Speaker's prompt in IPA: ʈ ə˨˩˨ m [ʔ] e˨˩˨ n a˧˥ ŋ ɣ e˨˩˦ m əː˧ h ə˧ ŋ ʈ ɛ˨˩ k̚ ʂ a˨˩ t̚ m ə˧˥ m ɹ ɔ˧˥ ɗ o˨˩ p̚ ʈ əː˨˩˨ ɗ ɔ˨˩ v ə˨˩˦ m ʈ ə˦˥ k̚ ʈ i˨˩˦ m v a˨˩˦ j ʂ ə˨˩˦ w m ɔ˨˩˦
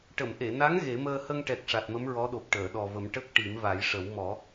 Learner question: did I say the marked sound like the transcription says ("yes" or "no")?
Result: yes